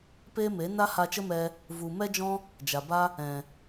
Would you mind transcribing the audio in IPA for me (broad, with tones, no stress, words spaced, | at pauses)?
peː˦me˨˦ na˦ha˧t͡ʃə˦mɛ˧ | vu˨ mɛ˦d͡ʒɔ̃˦ | d͡ʒa˨ba˦ | ɛ̃˨